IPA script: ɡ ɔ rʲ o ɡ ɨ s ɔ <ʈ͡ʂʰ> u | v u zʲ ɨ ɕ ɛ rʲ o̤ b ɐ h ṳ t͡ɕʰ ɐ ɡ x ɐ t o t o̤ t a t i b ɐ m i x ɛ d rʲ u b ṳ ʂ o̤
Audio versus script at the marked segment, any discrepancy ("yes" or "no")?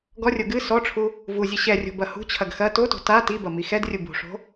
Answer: no